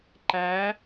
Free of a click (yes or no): no